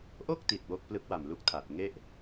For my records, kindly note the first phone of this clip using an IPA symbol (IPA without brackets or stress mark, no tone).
ʔ